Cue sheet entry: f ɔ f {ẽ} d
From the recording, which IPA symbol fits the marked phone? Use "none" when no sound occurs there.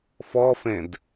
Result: ẽ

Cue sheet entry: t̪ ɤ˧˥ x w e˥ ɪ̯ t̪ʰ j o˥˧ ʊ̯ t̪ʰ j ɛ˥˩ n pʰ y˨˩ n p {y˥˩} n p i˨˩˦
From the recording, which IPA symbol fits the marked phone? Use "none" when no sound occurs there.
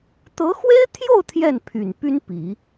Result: y˥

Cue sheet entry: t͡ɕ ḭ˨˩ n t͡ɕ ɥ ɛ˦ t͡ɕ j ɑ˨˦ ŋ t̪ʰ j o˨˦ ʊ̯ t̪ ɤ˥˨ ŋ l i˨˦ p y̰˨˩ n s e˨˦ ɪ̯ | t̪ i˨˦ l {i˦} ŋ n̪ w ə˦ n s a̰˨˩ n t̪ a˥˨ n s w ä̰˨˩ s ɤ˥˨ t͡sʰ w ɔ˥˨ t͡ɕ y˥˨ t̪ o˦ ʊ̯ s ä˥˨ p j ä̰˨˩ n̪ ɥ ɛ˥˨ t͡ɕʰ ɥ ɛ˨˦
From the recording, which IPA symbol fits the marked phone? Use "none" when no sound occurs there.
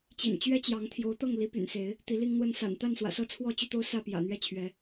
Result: i˦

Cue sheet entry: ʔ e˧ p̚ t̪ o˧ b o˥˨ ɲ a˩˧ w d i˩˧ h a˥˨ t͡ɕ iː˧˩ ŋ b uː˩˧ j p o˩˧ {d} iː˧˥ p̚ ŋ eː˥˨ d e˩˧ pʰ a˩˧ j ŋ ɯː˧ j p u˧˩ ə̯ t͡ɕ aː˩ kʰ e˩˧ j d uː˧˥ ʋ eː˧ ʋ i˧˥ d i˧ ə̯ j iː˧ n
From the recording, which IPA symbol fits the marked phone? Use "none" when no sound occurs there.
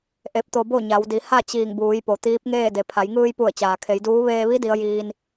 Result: t̪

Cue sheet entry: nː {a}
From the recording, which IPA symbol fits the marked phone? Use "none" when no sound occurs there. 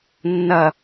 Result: ɐ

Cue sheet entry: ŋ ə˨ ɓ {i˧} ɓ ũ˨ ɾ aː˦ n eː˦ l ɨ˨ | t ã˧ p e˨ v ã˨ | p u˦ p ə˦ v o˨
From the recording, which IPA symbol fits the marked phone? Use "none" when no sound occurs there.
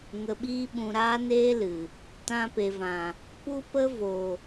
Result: iː˧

